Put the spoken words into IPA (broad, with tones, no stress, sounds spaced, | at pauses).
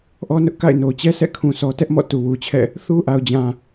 ʔ ɔ˦ n ʊ˦ ʔ k a̰˦˨ ɪ̯ n o˨ t͡ɕ ɛ˦ sʰ ɛ̰˦˨ kʰ ũ˨ sʰ ɔ˨ t ɛ˦ ʔ m ɔ̰˦˨ t u˨ w u˨ t͡ɕʰ ɛ̰˦˨ | θ u˦ ʔ a˨ ʊ̯ d͡ʑ ã˨